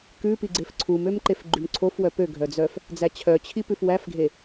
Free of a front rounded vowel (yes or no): no